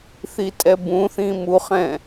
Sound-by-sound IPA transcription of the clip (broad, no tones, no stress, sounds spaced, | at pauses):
θ i tʼ ɛ b ũ θ ĩ m u χ ɛ̃